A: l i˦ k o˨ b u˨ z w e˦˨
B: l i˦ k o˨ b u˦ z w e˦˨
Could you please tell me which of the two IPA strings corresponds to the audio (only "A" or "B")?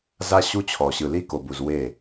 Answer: A